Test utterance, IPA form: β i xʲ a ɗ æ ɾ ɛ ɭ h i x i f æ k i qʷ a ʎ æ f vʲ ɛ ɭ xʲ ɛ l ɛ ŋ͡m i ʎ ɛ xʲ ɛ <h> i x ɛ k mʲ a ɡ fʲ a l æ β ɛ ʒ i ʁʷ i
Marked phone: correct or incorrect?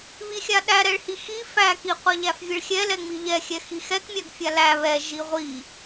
incorrect